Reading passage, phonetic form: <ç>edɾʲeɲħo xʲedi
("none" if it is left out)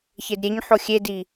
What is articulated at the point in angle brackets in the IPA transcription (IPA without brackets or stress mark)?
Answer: ç